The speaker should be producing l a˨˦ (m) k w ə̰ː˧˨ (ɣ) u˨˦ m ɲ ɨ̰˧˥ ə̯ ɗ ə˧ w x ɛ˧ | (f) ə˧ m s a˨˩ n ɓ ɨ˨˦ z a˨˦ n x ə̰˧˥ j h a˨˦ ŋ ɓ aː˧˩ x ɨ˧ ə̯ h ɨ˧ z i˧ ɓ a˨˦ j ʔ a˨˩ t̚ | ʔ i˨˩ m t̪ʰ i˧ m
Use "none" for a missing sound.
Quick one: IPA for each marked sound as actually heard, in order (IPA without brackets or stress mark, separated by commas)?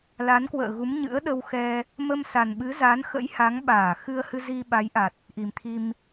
n, ɣ, m